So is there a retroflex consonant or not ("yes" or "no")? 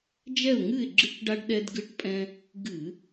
yes